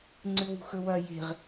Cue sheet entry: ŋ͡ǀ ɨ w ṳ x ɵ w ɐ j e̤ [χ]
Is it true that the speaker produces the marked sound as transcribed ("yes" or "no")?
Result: no